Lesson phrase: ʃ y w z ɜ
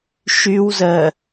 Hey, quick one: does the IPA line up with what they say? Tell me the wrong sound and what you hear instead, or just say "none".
none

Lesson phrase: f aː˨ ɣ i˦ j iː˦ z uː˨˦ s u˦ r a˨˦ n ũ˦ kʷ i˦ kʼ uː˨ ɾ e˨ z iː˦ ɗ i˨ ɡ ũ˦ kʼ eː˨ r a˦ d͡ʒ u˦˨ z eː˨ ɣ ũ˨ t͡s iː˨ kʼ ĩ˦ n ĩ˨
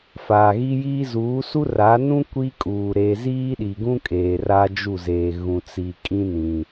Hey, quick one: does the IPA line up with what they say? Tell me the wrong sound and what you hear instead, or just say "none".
none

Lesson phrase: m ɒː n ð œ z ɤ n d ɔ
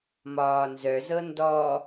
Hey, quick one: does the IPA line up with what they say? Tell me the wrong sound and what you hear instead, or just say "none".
ð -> z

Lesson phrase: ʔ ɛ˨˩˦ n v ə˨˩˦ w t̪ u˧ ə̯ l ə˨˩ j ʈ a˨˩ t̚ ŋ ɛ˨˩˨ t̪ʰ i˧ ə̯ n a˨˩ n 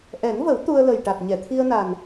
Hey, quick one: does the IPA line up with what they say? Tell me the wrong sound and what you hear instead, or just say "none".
ŋ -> ɲ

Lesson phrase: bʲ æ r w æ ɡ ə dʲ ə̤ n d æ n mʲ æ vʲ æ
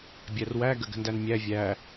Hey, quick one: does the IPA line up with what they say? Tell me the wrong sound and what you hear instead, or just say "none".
dʲ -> ɡ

